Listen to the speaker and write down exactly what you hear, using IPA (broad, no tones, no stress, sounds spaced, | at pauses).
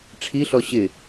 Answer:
ʈ͡ʂʰ i ɬ ɔ ɕ ɪ